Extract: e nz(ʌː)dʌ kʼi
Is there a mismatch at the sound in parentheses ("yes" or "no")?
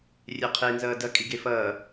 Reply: no